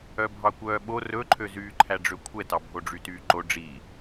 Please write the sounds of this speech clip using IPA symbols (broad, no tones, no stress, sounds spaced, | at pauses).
œ bʱ ɑ kʷ œː ɓ o r ɵ ǃʰ ø z yː ǃʰ æ ɖ͡ʐ ø kʷʰ ɛ t ɑ bʱ o ɖ͡ʐ y t yː ǃ o ɖ͡ʐ i